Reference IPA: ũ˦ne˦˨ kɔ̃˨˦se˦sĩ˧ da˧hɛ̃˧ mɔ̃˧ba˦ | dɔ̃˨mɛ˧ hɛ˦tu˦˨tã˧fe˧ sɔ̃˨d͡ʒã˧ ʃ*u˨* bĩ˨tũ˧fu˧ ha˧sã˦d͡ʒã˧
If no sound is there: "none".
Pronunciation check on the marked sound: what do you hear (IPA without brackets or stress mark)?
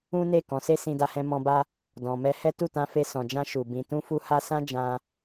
u˨